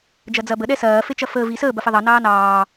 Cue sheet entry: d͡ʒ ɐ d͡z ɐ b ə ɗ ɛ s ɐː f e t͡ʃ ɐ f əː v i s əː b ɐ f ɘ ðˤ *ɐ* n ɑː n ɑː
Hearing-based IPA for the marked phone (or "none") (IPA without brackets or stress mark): ɑ